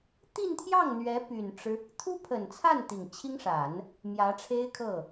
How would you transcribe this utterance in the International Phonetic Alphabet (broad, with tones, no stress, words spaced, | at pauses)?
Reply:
t̪i˥˧nt̪ʰjɑ˥˩ŋ n̪ɥɛ˧˥ py˨˩nʈ͡ʂɻ̩˦ | t̪ʰu˥pʰə˨˩nt͡sʰa˥˩n t̪i˨˩ŋt͡ɕʰi˥ŋʂa˨˩˦n | mjä˧˥ʈ͡ʂʰe˥ɪ̯kʰɤ˥˩